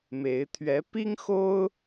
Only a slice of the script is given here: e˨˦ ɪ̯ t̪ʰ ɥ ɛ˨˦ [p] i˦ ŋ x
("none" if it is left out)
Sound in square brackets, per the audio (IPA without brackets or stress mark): p